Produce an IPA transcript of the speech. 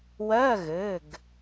wɜ˧˥˧ ɣɘ˩˧˩ɡ

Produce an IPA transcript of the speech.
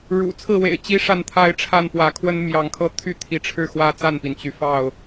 ɻṵ˨˩ t͡sʰɹ̩˥˨wḛ˨˩ɪ̯ t͡ɕi˦ʂa˥˨nt̪ʰa˦ɪ̯ ʈ͡ʂʰa˥˨n pwä˨˦kʰwə˦n mjɑ˨˦ŋkʰɤ˦t̪ʰy˦ t̪ʰi˨˦ʈ͡ʂʰɻ̩˥˨xwä˦ t͡sa˥˨npi˩n t͡ɕy˨˦fɑ˥˨ʊ̯

